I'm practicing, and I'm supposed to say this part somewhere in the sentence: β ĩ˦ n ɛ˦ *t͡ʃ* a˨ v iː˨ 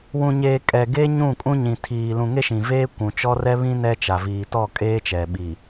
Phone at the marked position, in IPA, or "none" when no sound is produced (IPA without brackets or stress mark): t͡ʃ